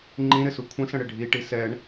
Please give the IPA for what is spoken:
ŋ͡ǃĩɾɪsu kʷʰə̃sə̃ɽɪ ɖʱiʈi sɛɳ

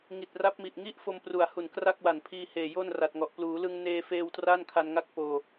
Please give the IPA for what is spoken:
ŋi˨˩t̚ ra˦˥p̚mi˨˩ʔŋi˥˩ʔfo˧m pru˨˩a̯hu˨˩n kra˥˩k̚wa˨˩npʰiː˧ heː˨˩jo˥˩nra˨˩t̚ŋɔ˨˩ʔ pluː˩˦lɯ˧ŋ neː˧feː˧w tra˥˩nkʰa˧nŋa˥˩k̚ poː˧

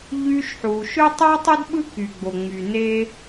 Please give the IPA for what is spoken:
ʎy˦ʃħu˨ ʃø˥tˤy˥tˤy˥d ɓɯ˥ky˨ɡ͡bo˨ ŋ͡my˨ne˦

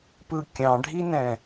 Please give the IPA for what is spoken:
pɯ kʲɑ̃ɖʱinɛ̃

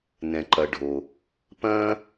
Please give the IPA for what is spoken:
nɛ̃˨ǃɐ˨ɖʱo˨ | pɐ̃ː˦

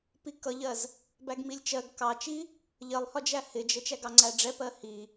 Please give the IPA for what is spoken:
pikʌʎɜz | bæɡmilʲt͡ʃɜɡ kɑt͡ʃi | ʎɜlˠhɒd͡ʒæ hɪd͡ʒə t͡ʃæɡɑŋ͡ǀæɖ͡ʐɛ pɜhi

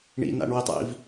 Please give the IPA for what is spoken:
ɳḭna̰ɳwitˤḭv

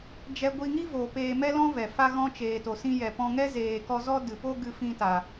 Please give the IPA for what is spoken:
d͡ʒɛ˧ɡʷi˧ŋi˦vo˨ peː˧mɛ˦lɔ̃˦vɛ˨ fa˧ ɣɔ̃˧t͡ʃeː˨to˨sĩ˧ jɛ˨pɔ̃˧ŋɛ˦ zeː˨kɔ˧ zɔ˧ dɨ˨po˦ɡɨ˧ fĩ˧ta˨

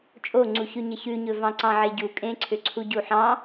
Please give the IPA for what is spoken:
t͡ʃʼoŋ͡ǀuçʉ ɲəçʉɲɵ vɑ̃ǀɑ̃ʕeɟu kʼẽǀʰʏǀʰu ɟuħɑ̃

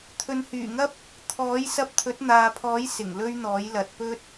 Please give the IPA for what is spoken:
t̪ʰɵ˨nhyː˨˩ŋɐ˥p̚ | t̪ʰɔː˨˥j sɐ˧p̚t̪ʰɵ˨˥t̚n̪aː˨pʰɔː˨˥j sɪ˨˩ŋlɵ˥ɥn̪ɔː˨˥j lɐ˨t̚pɵ˥t̚

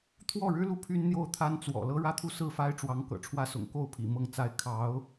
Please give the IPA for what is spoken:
t̪ʰwɔ˥˩ɻɻ̩˥lu˥˩ pʰy˥nn̪jo˥˩ʊ̯t̪ʰa˥n t͡swɔ̰˨˩ lɤ˥ɻä˥t̪ʰu˥˧ sɹ̩˥˩fa˥ɪ̯ʈ͡ʂwɑ˧˥ŋ kɤ̰˨˩ʈ͡ʂʰwä˥sʊ̰˨˩ŋ ko˥˩ʊ̯pʰḭ˨˩ mɤ˥˩ŋt͡sa˥ɪ̯ kʰɑ˧˥ʊ̯

